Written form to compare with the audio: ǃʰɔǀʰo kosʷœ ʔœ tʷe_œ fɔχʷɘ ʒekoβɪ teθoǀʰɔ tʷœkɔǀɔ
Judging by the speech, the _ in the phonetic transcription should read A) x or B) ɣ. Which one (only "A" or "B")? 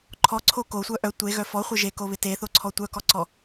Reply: B